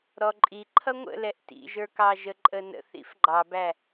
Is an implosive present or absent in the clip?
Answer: absent